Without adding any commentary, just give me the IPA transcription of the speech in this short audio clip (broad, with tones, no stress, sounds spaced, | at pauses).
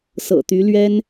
s ɤ̰˨˩ t̪ y˧˥ l ɥ ɛ˥ n